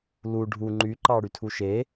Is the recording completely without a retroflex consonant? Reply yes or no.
no